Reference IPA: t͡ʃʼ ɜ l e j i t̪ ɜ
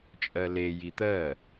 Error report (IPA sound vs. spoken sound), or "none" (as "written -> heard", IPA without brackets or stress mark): none